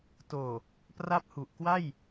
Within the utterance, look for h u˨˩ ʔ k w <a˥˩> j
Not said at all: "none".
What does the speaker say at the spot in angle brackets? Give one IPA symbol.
a˥˩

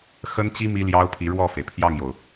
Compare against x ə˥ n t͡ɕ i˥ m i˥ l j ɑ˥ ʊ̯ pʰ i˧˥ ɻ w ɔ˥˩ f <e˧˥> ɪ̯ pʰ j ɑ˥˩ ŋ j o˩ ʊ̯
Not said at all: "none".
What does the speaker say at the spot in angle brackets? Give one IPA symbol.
e˩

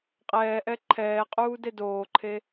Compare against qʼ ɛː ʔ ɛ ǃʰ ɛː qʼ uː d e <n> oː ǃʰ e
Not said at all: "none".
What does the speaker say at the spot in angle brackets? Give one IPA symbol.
d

